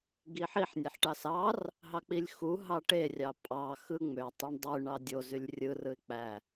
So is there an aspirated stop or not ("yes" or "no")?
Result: no